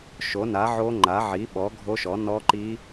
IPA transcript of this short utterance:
ʃ o˨˥ n a˨˥ ʕ o˦˥ ŋ͡ǃ a˨˥ ʕ i˨˥ ɓ ɔ˨˥ ɡʱ o˦˥ ʃ ɔ˨˥ n ɔ˦˥ ǃ i˦˥

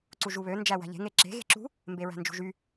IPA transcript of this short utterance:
ǀ u ʒ u β ø n d͡ʒ æ w æ̤ ʎ e̤ ŋ e ǁ e̤ ɣ e̤ ǁ ṳ | m b e ɹ æ̤ n d͡ʒ ṳ ʒ y

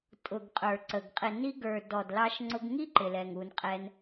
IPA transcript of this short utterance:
tʼ ʊ˨ ɡ qʼ ə˞˨ ǀ ə˨ ɡ qʼ ɪ˨ n i˧ ɡ ə˞˨ d ɔ˨ d l ɑ˧ ʃ ŋ͡ǀ ʊ˧ ɡ ŋ i˦ ǃ ɪ˨ l ɛ˨ ŋ u˧ n qʼ ɛ˦ n

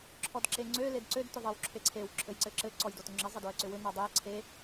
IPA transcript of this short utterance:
ǁʰ ɔ d ǁ e ŋ͡ǀ ø l e d ǀ ø d t ʏ ðˤ ɘ w ǁʰ e ǀʰ e w ǁʰ ɘ j ǀ ɘ ǁ ɘ ǀ ɔ j d o t ʏ ŋ͡ǁ ɘ zˤ ɘ d o ə̯ ǀ ʏ w ʏ n ɔ dˤ ø ə̯ ǀʰ e

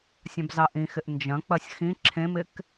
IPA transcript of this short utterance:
sʲ ã b z ɑ ʔ ĩ x ɪ ʔ n d͡ʒ ɐ̃ k͡p ɐ sʲ x ĩ ǁʰ ẽ m ɪ k

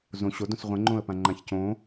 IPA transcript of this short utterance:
z õ ɕ o d õ s ʁʷ ə̃ ŋ͡ǃ õ ə̯ p ã ŋ͡ǃ ã ç c õ

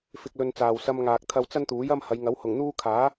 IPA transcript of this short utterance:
f ɪ˧ k̚ l ɵ˧ n t͡s aː˨ w s ɐ˧ m ŋ aː˨ k̚ t̪ʰ ɐ˧ w t͡s ɐ˥ n t̪ uː˨˥ j ɐ˥ m h ɐ˨˧ j ŋ ɐ˨˥ w h ʊ˨˩ ŋ n̪ uː˥ kʰ aː˨˥

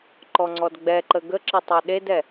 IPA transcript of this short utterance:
ǃ ɔ ŋ͡ǀ ɔ d ɡ͡b ɛ ǃ ə ɡ ə ǁ ɘ tˤ a ɗ e d ɛ

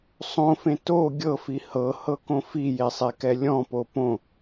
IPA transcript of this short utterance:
sˤ õ f ẽ t o ɡʲ ɤ f i h ɤ h ɤ k õ f i j e sˤ e k ɛ lʲ ɔ̃ p o p õ

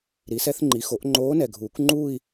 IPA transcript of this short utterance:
ɾ i˩˥ s ɛ˧˥ θ ŋ͡ǃ i˩˥ x o˩˥ ʔ ŋ͡ǃ oː˧˥ n ɛ˨˩ ɡʱ uː˨˩˦ k ŋ͡ǃ uː˥˧ i̯

